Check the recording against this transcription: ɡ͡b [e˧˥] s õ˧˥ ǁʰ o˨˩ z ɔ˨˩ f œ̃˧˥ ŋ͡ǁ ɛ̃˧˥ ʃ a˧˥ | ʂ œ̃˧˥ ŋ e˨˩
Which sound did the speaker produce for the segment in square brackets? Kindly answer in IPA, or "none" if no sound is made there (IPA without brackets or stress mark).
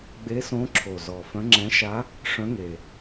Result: e˧˥